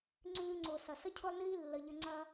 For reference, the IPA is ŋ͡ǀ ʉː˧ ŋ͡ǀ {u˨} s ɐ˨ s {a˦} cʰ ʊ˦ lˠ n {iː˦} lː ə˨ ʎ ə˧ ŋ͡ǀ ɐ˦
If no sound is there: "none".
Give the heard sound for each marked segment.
ʊ˨, ə˦, iː˦

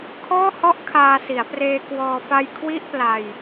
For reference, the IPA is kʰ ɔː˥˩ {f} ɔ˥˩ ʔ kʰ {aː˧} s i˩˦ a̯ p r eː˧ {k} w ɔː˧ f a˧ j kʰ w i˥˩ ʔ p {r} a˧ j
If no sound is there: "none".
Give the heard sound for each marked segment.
h, aː˧, k, l

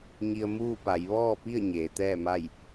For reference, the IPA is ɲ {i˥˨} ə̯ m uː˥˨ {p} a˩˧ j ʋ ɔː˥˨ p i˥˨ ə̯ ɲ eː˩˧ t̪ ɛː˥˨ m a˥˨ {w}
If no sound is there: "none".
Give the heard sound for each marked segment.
i˧, p, j

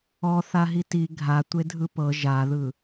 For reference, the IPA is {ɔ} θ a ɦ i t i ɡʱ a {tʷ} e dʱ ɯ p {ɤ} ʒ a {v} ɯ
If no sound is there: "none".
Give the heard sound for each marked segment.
ɔ, tʷ, ɤ, ð

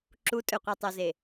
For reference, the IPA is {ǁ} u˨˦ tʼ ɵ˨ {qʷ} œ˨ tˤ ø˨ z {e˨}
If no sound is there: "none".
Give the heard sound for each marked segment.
ǁ, qʷ, e˨

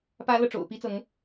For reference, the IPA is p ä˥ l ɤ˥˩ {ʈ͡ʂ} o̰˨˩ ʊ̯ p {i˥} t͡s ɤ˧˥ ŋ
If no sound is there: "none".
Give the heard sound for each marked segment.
ʈ͡ʂ, i˥

